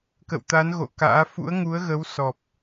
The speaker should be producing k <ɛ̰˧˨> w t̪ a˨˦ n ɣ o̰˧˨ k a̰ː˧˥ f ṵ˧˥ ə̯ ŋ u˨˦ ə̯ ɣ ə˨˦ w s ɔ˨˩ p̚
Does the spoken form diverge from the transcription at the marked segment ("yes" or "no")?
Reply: yes